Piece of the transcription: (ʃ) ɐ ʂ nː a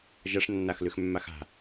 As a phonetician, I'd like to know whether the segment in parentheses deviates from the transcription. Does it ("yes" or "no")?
yes